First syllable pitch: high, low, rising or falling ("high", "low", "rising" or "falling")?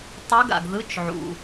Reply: rising